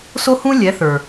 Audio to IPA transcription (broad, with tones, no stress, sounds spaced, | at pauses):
s o˦ h ũ˦ lʲ ɛ˨˦ θ ə˞˨